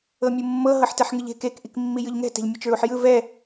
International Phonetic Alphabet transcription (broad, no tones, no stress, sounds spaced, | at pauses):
ɤ mʲ ɯ mː ɤ ɦ ɤ ħ t ɛ ħ ŋ ɯ ʎ e̤ k e k ʔ i k mː i j ɯ ʎ ŋ ɛ̤ t ɛ̤ ʎ mʲ ɤ t͡ʃ ɹ u ħ j ɯ v ɛ